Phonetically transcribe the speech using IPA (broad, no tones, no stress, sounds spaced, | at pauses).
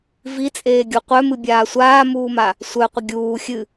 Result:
v i t͡sʼ eː ɡʲ u qʷ œ m ɨ bʲ aː sʷ aː m uː m a | sʷ œ qʷ ə ɡʲ uː xʲ ɨ